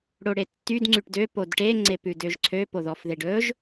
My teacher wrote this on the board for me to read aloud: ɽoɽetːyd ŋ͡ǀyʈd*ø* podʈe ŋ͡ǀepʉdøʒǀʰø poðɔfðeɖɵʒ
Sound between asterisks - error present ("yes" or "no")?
no